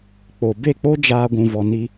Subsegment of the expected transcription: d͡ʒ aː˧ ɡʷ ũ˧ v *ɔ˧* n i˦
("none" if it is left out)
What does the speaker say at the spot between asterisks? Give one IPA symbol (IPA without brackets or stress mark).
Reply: ɔ˧